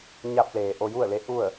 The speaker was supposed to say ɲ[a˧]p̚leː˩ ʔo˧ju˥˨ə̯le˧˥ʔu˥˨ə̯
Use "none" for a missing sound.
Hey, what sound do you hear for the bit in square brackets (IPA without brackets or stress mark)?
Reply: a˧